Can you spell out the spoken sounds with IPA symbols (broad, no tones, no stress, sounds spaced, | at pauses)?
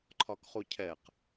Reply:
ǃʰ ɒ k χ u cʰ ɛ q